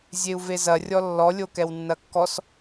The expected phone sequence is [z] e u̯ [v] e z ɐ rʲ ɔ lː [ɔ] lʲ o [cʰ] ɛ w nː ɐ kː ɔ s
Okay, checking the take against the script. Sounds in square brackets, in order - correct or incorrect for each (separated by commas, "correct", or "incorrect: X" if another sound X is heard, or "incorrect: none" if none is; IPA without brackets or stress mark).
incorrect: zʲ, correct, correct, incorrect: k